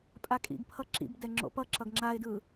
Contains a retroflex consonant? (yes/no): no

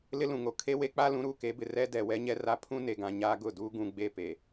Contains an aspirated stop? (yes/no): yes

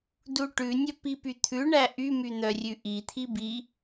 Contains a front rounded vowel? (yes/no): yes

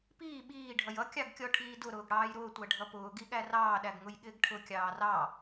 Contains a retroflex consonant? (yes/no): yes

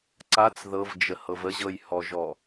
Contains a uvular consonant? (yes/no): no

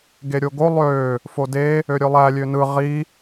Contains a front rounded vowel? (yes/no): yes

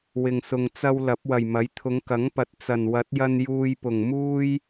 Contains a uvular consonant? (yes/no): no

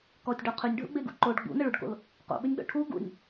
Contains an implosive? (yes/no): yes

